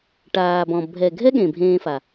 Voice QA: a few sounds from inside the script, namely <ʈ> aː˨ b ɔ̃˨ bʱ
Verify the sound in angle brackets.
correct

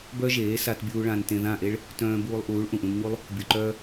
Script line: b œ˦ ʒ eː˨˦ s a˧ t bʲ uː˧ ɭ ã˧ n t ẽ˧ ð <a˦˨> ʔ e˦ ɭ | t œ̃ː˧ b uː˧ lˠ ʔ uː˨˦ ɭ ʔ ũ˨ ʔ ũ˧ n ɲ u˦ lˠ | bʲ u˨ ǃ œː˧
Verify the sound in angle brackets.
incorrect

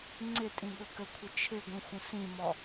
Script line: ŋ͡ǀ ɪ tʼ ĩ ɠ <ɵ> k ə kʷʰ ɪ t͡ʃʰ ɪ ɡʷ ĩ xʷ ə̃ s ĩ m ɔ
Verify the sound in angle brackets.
correct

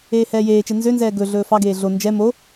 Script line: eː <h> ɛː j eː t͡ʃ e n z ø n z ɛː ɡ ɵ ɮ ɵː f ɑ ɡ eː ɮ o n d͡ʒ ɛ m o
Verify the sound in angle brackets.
correct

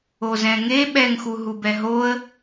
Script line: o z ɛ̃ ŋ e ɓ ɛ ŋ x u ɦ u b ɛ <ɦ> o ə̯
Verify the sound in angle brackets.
correct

